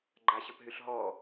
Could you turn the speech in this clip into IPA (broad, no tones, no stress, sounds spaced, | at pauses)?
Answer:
ɡ͡ǃ a ɕ ə p ɦ y ɬ ɦ ɔ